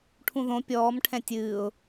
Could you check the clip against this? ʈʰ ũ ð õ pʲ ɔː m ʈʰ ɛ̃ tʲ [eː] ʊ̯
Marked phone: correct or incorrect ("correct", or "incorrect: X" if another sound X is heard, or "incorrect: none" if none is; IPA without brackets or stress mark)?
incorrect: ɨː